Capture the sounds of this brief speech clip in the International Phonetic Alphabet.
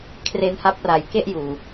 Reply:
kʰ r e˧ n h a˦˥ p̚ r a˨˩ j k e˥˩ ʔ j uː˨˩

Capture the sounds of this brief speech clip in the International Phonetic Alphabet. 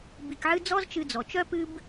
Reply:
b i˧ k ʕ ɨ˥ d͡z ɔ˥ z t͡ʃ ɨ˧ d͡z ɔ˩ t͡ʃ œ˥ p ɨ˥ b

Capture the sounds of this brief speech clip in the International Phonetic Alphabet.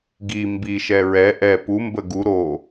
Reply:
ɡ i m b i ʃ ɛ ɹ ɛ ʔ ɛ p u m b ə ɡ u ɾ o

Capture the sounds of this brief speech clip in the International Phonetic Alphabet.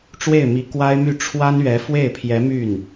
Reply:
ʈ͡ʂ w e˥˩ ɪ̯ m i˧˥ k w a˥ ɪ̯ m y˥˩ ʈ͡ʂʰ w a˥ n ɥ ɛ˧˥ f w e˥˩ ɪ̯ pʰ j ɛ˧˥ m y˥˩ n

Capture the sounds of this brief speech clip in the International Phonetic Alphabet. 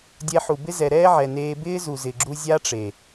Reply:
dʲ ɛ˧ ħ u˨ b ɪ˦ z ɛ˨ ɾ ɛː˦ ʕ ɛ˨ n eː˧ b ɪː˦ z u˨ z ɪ˨ ɡ͡ǁ u˧ zʲ a˦ ʈ͡ʂ e˨

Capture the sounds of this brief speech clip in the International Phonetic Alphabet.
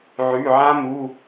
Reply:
ʕ ʉ˩˧˩ ʕ ã˦˥ m u˩˧˩

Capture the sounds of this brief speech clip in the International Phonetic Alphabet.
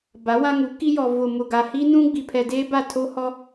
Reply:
b a˨˦ w ã˦ ŋ u˨˦ k i˦ j ɔ˨ v ʊ˨ m ʊ˨ ɡ a˨ h i˦ n ũ˦ ɡ͡b i˨ pʰ ɛ˨ d eː˦ b a˦˨ tʰ o˦ h ɔ˦

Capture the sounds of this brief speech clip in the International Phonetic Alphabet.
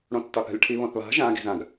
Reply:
ɽ õ tː ɒ θ a̤ lʲ ʈʰ i β õ θ β a̤ ʒ ã ɡ i̤ z ã ɡ

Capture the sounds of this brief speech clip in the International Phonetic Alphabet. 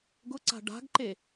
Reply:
ɡ ʊ ǀ a̤ ɖ a̤ ɡ ǃ e

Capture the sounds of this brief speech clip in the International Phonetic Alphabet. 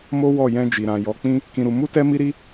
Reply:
m o˦ w ɔ˦˨ j ɛ̃˧ d͡ʒ i˨ ɾ ã˨ j ɔ˨˦ k͡p ĩ˦ | k ĩ˧ ɾ u˧ m u˦ t ɛ˦ m i˦ ɾ i˦

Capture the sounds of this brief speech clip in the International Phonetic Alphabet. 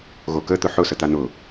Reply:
ɣ o k ə t̪ ʊ ħ ʊ s ə t̪ a n̪ ʊ

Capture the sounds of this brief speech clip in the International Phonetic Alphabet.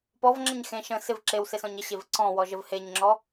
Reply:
p ɔ v ŋ͡ǁ ə̃ ɲ x ẽ ʃ ə̃ s ɪ v ǁ e w s e s ɔ̃ ɲ ə ɕ e v ǀ ɔ̃ w ɔ ʒ ə v h e ɲ ŋ͡ǁ ɔ

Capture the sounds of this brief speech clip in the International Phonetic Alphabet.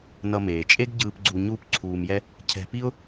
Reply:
n ʌ˧ m eː˩ t͡ʃʼ e˥ ɡ ɟ ɯː˧ p ɡ͡ǀ u˧ ɲ uː˥ p ǀʰ uː˧ m j ɛ˥ | cʰ ɛ̤˧ p i˥ ʊ̯

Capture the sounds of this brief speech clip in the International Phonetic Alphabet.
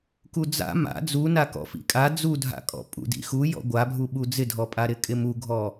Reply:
k u d͡z a̰ m a̰ d͡z u n a k ɔ̰ f ḭ kʼ a d͡z u dʱ a̰ kʼ ɔ̰ pʼ ṵ d ḭ x u j ɔ̰ ɡʷ a bʱ u ɓ u d͡z ɪ dʱ ɔ pʼ a ɾ ɪ kʼ ɪ m u ɡʱ ɔ

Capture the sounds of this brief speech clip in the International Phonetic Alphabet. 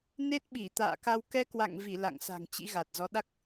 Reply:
n e˦˥ t̚ ɓ i˧˩ t̪ a̰ː˧˨ k a˧ w k ɛ˧ k w a̰˧˨ ŋ v i˧˩ l a̰˧˨ ŋ s a̤˨˩ ŋ t͡ɕ ḭ˧˥ ɣ a˨˩ t̚ z ɔ˨˦ ɗ a˦˥ k̚

